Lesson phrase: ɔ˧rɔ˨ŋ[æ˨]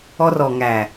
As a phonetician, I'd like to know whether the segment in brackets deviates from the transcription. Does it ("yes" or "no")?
no